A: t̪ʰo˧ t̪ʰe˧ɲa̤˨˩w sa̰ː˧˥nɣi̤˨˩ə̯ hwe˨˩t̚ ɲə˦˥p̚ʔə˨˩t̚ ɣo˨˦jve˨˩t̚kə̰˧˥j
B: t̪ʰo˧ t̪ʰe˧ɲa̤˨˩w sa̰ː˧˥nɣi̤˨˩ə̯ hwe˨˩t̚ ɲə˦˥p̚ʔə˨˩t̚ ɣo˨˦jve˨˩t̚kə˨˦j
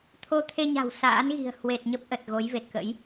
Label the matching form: A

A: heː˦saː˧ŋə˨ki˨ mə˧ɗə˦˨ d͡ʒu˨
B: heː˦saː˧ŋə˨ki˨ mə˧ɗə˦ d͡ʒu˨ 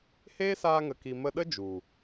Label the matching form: B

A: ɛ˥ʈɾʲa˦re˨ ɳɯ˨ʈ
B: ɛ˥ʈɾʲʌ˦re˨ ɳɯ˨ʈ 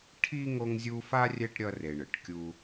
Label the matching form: B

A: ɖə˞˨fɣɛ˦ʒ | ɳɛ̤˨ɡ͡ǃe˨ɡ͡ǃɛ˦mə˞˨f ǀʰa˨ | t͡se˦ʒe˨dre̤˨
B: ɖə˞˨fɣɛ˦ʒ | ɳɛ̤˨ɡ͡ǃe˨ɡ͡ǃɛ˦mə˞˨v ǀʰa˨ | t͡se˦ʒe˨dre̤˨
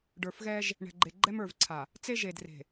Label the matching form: B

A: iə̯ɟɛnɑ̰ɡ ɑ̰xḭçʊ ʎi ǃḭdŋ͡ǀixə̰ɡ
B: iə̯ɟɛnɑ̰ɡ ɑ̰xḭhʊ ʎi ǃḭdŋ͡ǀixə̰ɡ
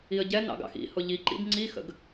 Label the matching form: B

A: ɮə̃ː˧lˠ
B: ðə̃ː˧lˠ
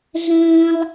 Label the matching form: A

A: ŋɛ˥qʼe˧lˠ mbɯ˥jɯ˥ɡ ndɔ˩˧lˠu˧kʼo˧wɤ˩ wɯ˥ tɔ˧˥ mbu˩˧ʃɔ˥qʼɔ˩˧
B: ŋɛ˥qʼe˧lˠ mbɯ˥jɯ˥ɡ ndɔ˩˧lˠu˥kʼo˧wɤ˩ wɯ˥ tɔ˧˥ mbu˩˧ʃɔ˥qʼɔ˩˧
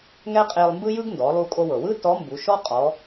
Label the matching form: A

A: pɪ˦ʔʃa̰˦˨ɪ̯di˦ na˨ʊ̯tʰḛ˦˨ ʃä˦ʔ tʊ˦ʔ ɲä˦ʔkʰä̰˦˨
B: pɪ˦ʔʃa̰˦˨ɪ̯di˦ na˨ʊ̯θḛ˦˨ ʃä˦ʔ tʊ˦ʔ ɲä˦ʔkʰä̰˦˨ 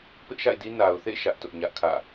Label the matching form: B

